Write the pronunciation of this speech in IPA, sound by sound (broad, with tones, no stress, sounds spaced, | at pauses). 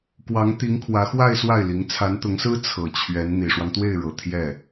k w ɑ˧˥ ŋ t̪ i˧˥ ŋ kʰ w ä˧˥ x w a˥˧ ɪ̯ s w a˥˩ ɪ̯ l i˧˥ ŋ t͡sʰ a˧˥ n t̪ ʊ˧˥ ŋ s ɹ̩˥ t͡sʰ ɤ˨˩ t͡ɕʰ ɥ ɛ˧˥ n n̪ i˨˩ ʂ w ɑ˦ ŋ t̪ w e˥˩ ɪ̯ ɻ ɤ˨˩ t̪ʰ j ɛ˥˩